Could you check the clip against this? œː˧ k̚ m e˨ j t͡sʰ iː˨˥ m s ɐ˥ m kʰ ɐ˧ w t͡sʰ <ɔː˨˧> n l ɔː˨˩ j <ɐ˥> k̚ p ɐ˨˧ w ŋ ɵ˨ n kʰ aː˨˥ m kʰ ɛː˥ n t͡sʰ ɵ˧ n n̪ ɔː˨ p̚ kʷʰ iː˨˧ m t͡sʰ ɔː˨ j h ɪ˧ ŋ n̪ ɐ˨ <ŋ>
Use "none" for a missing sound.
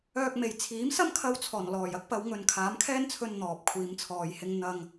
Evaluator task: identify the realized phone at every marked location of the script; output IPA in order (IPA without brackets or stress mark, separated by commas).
ɔː˨˩, ɐ˥, ŋ